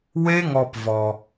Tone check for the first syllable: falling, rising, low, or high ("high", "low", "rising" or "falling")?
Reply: high